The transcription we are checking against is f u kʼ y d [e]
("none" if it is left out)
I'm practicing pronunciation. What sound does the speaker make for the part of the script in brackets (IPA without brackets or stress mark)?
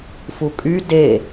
e